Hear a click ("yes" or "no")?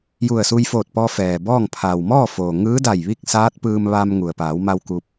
no